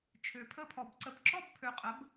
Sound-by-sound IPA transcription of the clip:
t͡ʃʰ ø˨ pʰ ə˥˨ pʰ ɔ˨ b ǀ ə˨ b ǁ ɔ˥˨ b pʰ ø˨ qʼ ə˩˥ b

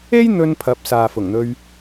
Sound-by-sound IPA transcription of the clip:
e˥ j n̪ ɵ˧ n pʰ ɐ˨˥ p̚ s aː˨ f ʊ˨˩ ŋ n̪ ɵ˧ ɥ

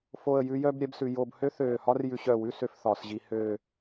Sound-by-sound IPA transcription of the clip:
f o˧˩ ə̯ j ʉ˧ j œ˥˧ b ɾʲ ɛ˥ b s ʉ˧ j o˥˧ b h ø˥ θ øː˧˩ h ɒ˥ r j ʉ˧ ɕ œ˧˩ w ʉ˥˧ s ø˧ f θ ɒː˩˧ s ʑ i˧ h øː˥˧

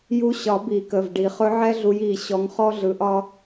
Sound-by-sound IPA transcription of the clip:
j u˧˥ ɕ ɒ˨˩˦ b i˨˩˦ k ə˩˧˩ v ɖ i˨˩˦ χ ɵ˧˥ ʕ ɛ˥ ɮ u˧˥ j i˩˧˩ ɕ ɔ˧˥ ŋ χ ɔ˥ ɮ ɯ˧˥ ʔ ɒ˥

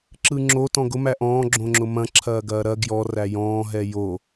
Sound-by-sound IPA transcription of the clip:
ǁ ɯ ŋ͡ǁ o t ɔ̃ ɡ ʊ m æ ʔ ɔ̃ː ɡ͡ǁ õ ŋ͡ǁ ʊ m ɐ̃ ǁʰ ɐː ɡ ɐː ɾ ɐ ɡ j ɔ r æ j ɔ̃ː ɦ ɛ j o

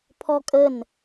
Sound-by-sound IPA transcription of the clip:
pʰ ɔ kʼ ə n

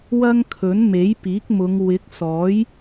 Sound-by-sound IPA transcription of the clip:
w ɐ˥ ŋ kʰ ɵ˨˥ n m e˨˥ j p iː˨˥ k̚ m ʊ˨˧ ŋ w ɪ˨˥ k̚ s ɔː˨˥ j

